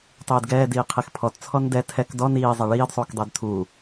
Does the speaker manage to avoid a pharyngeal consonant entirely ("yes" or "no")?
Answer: yes